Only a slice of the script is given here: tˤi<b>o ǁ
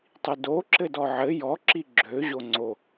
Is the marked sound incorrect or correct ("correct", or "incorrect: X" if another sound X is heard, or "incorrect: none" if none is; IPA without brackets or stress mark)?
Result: incorrect: d